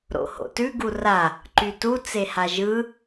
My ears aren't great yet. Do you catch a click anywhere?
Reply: yes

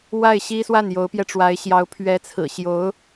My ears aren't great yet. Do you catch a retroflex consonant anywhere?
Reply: yes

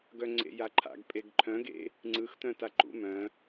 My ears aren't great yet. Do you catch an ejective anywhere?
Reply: yes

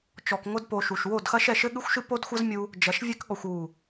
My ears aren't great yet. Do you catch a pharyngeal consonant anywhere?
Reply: no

